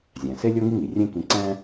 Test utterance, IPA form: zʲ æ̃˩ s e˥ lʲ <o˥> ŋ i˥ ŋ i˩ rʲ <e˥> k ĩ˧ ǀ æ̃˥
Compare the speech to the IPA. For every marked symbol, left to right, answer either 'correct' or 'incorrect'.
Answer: correct, incorrect: ẽ˥

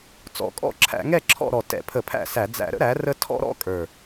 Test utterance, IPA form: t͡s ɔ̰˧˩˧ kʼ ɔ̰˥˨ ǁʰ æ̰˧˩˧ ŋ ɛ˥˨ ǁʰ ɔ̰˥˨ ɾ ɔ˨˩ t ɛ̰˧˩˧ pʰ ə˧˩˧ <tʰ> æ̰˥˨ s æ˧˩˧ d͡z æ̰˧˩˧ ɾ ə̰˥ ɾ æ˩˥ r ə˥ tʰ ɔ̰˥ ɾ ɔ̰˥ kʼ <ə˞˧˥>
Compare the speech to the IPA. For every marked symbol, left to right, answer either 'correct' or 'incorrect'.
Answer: incorrect: pʰ, incorrect: ə˞˨˩

